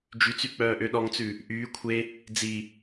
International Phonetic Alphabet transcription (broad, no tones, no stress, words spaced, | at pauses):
d͡ʒyt͡syk͡pœːʔø ɗɔŋt͡sʉ | ʔyː kʷʰe | d͡zi